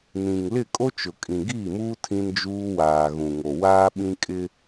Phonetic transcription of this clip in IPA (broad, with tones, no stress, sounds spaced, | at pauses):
n ĩ˨ ŋ l ɪ˦˨ kʼ o˦ t͡ʃ ʊ˨ kʼ ĩ˨ ɡ iː˦˨ m uː˦ tʰ ĩ˦ n d͡ʒ uː˦ w aː˨ ɣ ũ˨ ŋ o˨ w aː˦ ɓ ĩ˦ kʼ ɪ˦